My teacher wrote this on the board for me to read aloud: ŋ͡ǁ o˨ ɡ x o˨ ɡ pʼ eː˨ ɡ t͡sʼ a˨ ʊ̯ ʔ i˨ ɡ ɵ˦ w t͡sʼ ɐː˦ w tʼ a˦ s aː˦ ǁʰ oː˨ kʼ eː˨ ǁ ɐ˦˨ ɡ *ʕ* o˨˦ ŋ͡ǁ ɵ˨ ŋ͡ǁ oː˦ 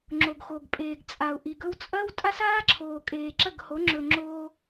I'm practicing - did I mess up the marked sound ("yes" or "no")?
yes